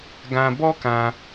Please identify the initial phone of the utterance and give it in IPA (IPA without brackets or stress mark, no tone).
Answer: ɡ